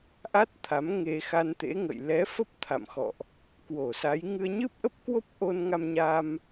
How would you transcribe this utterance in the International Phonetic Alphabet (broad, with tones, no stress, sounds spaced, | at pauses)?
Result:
ʔ a˦˥ t̚ t̪ʰ a˨˦ m ŋ e˧ x a˧ n t̪ ḛ˧˥ ŋ ə̰˧˨ j l ɛ˨˦ f ə˦˥ p̚ t̪ʰ a̰˧˨ m x ɔ̰˧˨ ʔ | k w o˧˩ s a˨˦ j ŋ ɨ˧ ə̯ ɲ ɨ˦˥ p̚ ʔ ə˦˥ p̚ k w o˦˥ p̚ ʔ o˧ n ŋ a˧ m ɲ a˧ m